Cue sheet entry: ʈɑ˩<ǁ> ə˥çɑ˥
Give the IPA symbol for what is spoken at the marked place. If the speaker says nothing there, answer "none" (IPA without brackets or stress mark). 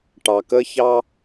k